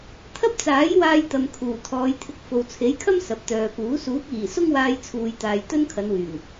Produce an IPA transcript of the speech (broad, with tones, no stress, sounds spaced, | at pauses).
t̪ʰ ɐ˥ p̚ t͡s aː˨˥ j w aː˧ j t̪ ɐ˨ m kʰ uː˨˩ t̪ʰ ɔː˨˧ j t̪ʰ ɪ˧ k̚ f o˨ w t͡sʰ e˨˥ j kʰ ɐ˥ m s ɐ˨ p̚ t̪ œː˨ p uː˨˥ s uː˨˥ k̚ iː˨˩ s ʊ˥ ŋ w aː˧ j t͡sʰ uː˨ j t̪ aː˨ j t̪ ɵ˥ n kʰ ɐ˨˧ n w yː˨˩ ŋ